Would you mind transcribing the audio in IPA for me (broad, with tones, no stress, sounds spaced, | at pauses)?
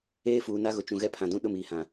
eː˦ f uː˨ n a˦ ɣ ʊ˨ t͡ʃ ũ˨ ɣ ɛ˦ pʰ ã˨ d ũ˦ ɗ ʊ˦˨ m iː˨ h ã˨